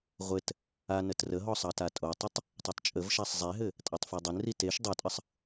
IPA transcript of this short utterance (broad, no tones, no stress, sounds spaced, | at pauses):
ʁʷ ɘ t | a n ə t r ə ɦ ɔ sˤ ɑ t a tʼ o tˤ ə tˤ | tˤ e tˤ t͡ʃʼ ə v ʃ a sˤ zˤ e ɦ ɘ | tʼ a tˤ f e dˤ ɘ n r i t e ʃ dˤ o tʼ ə sˤ